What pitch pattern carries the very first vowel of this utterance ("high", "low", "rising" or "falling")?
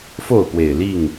falling